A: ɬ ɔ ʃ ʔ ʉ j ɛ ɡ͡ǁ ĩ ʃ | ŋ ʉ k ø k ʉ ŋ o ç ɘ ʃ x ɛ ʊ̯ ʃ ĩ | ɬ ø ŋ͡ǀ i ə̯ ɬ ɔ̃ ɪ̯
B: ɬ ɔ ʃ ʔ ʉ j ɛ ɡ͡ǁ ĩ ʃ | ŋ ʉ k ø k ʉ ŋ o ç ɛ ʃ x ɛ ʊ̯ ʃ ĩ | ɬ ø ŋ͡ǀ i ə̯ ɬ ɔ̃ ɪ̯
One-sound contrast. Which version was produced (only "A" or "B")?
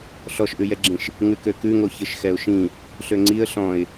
A